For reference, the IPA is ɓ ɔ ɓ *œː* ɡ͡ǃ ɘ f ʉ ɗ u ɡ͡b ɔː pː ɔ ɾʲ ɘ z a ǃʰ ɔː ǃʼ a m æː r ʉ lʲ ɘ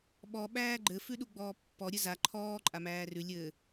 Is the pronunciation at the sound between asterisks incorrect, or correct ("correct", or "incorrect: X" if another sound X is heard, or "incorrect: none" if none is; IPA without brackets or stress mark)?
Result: incorrect: æː